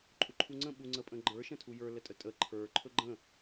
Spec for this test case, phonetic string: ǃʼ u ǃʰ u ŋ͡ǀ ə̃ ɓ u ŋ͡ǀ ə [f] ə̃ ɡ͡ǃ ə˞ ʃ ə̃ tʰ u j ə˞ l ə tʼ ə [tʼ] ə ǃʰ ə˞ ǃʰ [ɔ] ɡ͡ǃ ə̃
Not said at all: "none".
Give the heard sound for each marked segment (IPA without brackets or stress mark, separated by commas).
pʼ, tʼ, ɵ